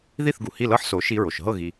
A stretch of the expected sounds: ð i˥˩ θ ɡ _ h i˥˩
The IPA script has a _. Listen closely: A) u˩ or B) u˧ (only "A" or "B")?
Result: A